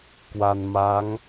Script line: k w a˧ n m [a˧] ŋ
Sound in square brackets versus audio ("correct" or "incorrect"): incorrect